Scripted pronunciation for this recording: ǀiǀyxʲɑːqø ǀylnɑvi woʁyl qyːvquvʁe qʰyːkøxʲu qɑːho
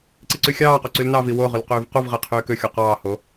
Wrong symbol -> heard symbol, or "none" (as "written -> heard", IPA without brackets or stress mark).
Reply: none